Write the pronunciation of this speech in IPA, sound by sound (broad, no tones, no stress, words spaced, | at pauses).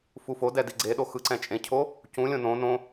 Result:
fufodɛ diɡ͡ǀeɗo xɯǀɛ̃t͡ʃʼẽcʰo | cũlʲõ nõ nõ